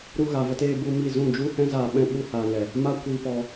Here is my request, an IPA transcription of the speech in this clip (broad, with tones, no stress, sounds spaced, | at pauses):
ɾ u˧ ɣ a˨ v ə˧ t eː˧ b u˧ m i˦˨ z ũ˦˨ d͡ʒ u˦ h ɛ̃˦ z aː˧ ɓ ɛ̃˧ ɓ u˧ h aː˨ ŋ ɛ˨ | m a˦ kʷ i˧ p ɔ˧